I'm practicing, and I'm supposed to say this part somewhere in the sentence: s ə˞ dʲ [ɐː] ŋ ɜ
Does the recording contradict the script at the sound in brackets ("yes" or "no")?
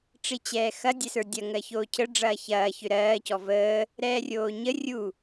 yes